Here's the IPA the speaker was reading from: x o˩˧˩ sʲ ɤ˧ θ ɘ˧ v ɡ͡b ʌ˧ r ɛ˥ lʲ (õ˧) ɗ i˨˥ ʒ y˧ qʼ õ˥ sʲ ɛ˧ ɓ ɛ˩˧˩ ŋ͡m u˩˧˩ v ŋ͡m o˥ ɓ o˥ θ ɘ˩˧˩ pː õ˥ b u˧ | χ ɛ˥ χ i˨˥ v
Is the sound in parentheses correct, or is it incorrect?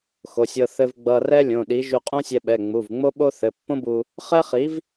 incorrect